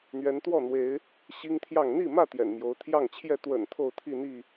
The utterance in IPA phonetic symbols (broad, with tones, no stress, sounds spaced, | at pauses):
n̪ ɥ ɛ˨˦ n t̪ w ɔ˥˨ n̪ w e˨˦ ɪ̯ | ɕ i˦ ŋ t̪ʰ j ɑ˥˨ ŋ n̪ i˥˨ m ä˥˨ t̪ j ɛ̰˨˩ n m j o˨˦ ʊ̯ t̪ʰ j ɑ˥˨ ŋ t͡ɕʰ j ɛ˥˨ t̪ w ə̰˨˩ n t̪ʰ o˥˨ ʊ̯ t̪ʰ i˥˨ n̪ i˥˨